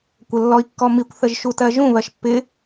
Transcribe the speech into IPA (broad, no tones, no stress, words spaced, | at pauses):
kʷəlːɔi̯kːɔmikʷ θəʒʃutɜʒũ βɜʃpːɪ